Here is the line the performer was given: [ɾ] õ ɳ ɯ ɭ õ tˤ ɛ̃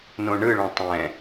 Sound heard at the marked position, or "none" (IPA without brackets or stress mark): n